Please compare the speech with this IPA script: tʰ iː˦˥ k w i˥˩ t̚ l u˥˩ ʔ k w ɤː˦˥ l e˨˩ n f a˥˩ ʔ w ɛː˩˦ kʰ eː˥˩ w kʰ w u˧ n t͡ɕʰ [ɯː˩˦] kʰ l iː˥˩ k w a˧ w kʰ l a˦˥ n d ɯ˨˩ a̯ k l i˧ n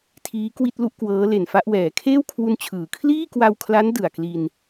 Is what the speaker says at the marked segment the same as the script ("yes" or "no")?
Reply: yes